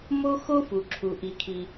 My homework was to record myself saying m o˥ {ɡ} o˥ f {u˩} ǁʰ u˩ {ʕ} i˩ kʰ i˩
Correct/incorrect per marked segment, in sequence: incorrect, correct, incorrect

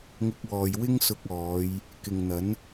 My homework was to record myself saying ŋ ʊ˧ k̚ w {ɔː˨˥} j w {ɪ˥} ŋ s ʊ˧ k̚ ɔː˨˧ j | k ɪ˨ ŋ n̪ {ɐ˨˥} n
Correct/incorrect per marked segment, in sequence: incorrect, correct, correct

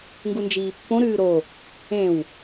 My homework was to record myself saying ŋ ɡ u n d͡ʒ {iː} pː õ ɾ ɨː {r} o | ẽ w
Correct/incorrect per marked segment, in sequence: correct, incorrect

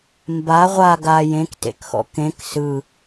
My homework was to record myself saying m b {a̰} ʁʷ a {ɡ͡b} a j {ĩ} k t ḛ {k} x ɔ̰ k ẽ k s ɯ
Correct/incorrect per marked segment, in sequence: incorrect, incorrect, incorrect, correct

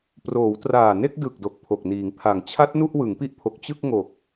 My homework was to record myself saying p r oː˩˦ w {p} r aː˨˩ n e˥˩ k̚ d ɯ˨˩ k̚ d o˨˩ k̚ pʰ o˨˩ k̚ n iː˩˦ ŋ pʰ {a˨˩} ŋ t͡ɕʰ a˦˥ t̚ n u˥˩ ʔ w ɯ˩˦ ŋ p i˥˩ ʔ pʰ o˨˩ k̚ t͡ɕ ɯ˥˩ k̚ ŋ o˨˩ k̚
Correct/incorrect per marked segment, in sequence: incorrect, correct

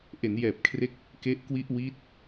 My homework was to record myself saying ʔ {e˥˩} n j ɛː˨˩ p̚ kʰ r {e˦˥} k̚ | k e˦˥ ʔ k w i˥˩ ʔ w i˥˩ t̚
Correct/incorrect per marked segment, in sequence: incorrect, correct

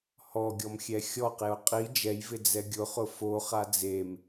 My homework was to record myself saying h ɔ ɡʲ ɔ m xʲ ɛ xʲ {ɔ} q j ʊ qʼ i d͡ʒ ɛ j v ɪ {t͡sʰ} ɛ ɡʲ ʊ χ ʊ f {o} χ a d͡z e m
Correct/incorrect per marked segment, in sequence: correct, incorrect, correct

